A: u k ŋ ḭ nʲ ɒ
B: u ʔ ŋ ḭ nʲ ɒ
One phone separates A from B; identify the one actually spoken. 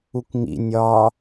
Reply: A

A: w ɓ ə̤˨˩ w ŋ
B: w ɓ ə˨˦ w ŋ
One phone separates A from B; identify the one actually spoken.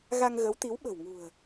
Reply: A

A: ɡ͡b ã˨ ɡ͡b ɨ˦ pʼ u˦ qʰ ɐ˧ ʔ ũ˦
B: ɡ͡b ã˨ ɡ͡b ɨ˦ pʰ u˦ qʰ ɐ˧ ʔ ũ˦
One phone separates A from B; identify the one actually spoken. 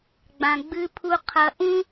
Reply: B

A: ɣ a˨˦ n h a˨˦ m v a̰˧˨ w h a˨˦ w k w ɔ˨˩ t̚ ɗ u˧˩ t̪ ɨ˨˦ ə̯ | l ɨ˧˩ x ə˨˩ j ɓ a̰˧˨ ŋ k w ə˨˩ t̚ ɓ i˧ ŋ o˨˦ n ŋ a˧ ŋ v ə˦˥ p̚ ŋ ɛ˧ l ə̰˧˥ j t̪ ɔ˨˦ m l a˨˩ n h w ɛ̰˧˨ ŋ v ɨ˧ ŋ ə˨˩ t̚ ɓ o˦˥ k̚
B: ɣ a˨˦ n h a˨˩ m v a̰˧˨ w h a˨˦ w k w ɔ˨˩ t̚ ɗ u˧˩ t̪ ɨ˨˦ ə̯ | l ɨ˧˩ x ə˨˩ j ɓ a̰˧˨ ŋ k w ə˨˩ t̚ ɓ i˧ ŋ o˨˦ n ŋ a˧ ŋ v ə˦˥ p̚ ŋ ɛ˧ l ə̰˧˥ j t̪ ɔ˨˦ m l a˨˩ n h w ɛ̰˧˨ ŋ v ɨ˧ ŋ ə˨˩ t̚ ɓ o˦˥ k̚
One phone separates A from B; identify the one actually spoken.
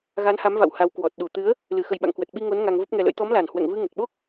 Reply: A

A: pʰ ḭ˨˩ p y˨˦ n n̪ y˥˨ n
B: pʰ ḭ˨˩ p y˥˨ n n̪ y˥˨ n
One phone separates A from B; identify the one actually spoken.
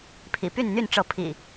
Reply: B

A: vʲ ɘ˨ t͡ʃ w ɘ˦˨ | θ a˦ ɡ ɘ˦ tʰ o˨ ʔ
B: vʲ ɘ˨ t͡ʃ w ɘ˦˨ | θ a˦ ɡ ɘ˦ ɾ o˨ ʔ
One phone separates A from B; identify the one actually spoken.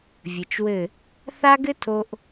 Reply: A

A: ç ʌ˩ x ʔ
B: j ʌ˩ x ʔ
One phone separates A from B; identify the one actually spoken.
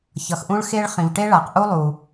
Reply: A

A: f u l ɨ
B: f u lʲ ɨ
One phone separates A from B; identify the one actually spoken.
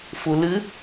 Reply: A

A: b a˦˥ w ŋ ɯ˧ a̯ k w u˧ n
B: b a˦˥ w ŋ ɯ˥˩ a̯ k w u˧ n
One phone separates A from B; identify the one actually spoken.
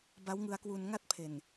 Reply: A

